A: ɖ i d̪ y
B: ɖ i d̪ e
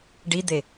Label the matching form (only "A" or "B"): B